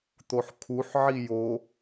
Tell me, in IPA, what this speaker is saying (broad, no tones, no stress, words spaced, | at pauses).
t̪oħkʰuħ ʕijo